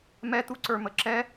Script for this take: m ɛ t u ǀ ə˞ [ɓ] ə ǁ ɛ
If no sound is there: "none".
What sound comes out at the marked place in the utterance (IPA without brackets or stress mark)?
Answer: m